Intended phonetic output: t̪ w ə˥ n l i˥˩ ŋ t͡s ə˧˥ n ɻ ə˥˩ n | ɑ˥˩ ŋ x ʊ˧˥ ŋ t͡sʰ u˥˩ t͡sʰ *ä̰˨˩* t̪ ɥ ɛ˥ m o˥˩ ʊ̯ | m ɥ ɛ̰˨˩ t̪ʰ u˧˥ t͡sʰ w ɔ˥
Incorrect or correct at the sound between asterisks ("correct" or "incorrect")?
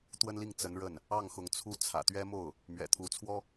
correct